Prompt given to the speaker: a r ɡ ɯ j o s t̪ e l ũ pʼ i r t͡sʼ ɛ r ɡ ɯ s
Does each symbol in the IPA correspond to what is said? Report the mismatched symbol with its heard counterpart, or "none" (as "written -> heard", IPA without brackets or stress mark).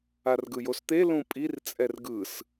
none